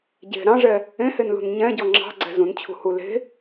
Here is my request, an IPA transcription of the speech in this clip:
ɟ e̤ ɾ ɑ̃ ʐ ɛ | ẽ h e n l ṳ n ɲ ɛ̃ ɟ ɔ ŋ͡ǁ ɑ̤ ɡ͡ǀ ɛ̤ z ũ n t͡ɕʰ ṳ h u l e̤

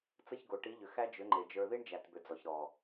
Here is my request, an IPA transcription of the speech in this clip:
t͡s ə˦˨ ç ɡ o˨ ʈ i˨˦ ʎ ʏ˨ x æ˦ d͡ʒ ʏ˨˦ ŋ͡ǃ e˨ d͡ʒ ə˞˧ ð i˦ ɳ d͡ʒ æ˨ t b ʏ˨ d͡z ɔ˨ ç ɾ ɔ˨

